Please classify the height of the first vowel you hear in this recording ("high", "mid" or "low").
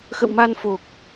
mid